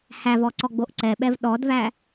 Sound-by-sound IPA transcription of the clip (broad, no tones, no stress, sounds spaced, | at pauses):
h æ v ɔ ǀ ɔ ɡ͡b o ʔ ǀ ɛ ɓ ɛ v ɗ ɔ d v æ